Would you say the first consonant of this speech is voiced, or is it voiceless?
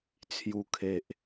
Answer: voiceless